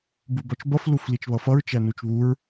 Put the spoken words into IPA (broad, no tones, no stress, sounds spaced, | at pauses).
b u b ɔ t͡ʃ b ʌ f l u f l i t͡ʃ β ʌ f ʌ ɹ t͡ʃ æ n u t͡ʃ β u ɹ